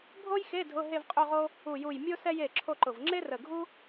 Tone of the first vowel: high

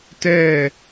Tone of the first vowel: falling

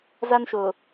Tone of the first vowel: high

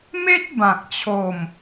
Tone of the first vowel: high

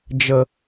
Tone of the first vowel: low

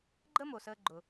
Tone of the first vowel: high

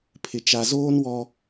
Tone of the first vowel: low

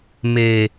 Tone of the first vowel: low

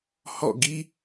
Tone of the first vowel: falling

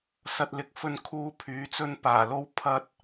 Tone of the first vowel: low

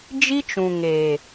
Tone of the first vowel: high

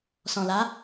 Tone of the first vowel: low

